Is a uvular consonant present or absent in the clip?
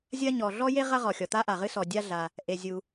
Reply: present